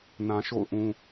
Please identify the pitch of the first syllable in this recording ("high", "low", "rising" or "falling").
low